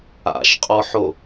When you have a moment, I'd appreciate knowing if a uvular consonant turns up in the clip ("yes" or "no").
yes